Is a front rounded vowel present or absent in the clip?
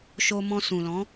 absent